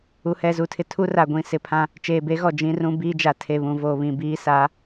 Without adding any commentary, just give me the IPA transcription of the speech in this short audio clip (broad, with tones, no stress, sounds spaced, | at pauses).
u˨ h ɛ˨ z u˨ tʰ ɪ˨ tʰ u˦ r a˨ ɡʷ ĩ˦˨ s ɪ˦ pʰ ã˦ | t͡ʃ eː˨ b e˦ ɣ ɔ˨ d͡ʒ ĩ˦ r ũ˦ b iː˦ d͡ʒ a˨ tʰ e˦˨ β ũ˨ v oː˨ β ĩ˨ b iː˦ s a˨˦